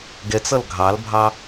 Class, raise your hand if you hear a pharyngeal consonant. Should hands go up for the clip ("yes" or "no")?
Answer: no